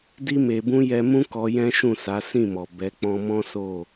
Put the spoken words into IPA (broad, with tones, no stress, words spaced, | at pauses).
di˧me˨bũ˧ jɛ˧mũ˦ kɔ˧ jɛ̃˦ʃũ˦˨sa˨˦ sĩ˦˨mɔ˨bɛ˨˦ k͡pɔ̃˧mɔ̃˦so˦˨